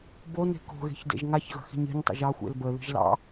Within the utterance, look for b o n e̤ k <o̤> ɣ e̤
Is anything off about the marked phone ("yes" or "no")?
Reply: no